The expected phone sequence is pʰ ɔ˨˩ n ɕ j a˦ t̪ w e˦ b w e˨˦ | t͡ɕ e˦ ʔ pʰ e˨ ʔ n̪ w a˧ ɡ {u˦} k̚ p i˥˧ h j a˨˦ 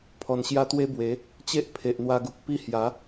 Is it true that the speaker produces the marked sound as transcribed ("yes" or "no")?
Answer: no